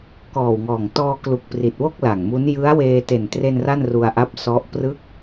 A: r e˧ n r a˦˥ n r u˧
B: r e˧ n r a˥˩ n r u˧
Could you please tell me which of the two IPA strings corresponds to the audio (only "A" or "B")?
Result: B